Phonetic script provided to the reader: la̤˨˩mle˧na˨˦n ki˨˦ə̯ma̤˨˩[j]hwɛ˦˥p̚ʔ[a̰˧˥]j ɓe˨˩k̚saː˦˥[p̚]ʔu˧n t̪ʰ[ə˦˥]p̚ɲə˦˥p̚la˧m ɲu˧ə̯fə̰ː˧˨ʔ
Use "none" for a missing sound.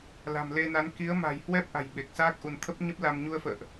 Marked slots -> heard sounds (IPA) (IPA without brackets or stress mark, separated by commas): j, a̤˨˩, k̚, ə˦˥